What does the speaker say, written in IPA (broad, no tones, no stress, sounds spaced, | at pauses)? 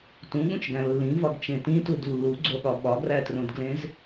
t ũ ɠ ũ t͡ʃ ɡ æ̃ lː ĩ v ɒ ɡ t͡ʃ ẽ t ĩ t u d lː u ɡ͡ǀ o ɠ ɒ ɓ ɒ ɡ r æ t r õ d ɡ l ẽ z